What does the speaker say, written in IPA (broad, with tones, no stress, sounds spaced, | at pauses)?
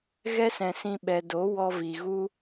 ɣ ɛ˦ s ɛ̃˨ s ĩ˧ ɓ ɛ˨ d o˨˦ w ɔ˧ v i˨ ɣ u˦